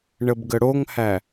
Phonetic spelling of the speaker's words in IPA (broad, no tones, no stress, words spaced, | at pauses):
ɳəbɡəɽoŋhæ